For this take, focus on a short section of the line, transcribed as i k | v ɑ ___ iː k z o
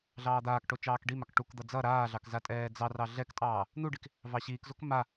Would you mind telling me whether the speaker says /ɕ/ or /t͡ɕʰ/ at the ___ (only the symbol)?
ɕ